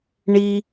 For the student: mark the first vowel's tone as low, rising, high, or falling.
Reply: high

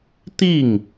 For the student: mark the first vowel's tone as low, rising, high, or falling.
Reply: falling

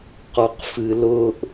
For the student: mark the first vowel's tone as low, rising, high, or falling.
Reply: low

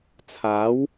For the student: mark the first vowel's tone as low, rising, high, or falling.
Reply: rising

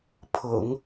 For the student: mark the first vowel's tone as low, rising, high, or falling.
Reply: low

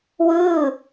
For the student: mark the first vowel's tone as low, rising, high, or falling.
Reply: falling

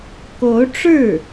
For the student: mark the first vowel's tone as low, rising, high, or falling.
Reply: rising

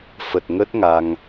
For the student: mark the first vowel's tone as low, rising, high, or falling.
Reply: low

